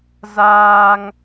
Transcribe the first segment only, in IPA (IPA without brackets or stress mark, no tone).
z